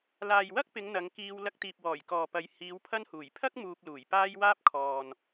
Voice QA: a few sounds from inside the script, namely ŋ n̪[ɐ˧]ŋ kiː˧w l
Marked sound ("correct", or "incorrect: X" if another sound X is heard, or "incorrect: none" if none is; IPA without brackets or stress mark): incorrect: ɐ˨˧